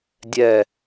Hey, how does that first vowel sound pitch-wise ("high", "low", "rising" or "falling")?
falling